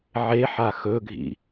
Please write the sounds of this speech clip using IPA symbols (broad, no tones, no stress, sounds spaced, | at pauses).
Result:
ʕ e ħ a x ɵ ɡʱ ḭ